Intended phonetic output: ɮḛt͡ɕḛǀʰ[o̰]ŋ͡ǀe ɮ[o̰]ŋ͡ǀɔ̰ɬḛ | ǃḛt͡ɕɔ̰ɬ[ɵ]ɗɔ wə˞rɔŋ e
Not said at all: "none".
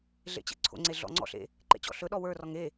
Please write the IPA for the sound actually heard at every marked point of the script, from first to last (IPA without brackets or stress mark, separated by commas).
o̰, ɔ̰, ɵ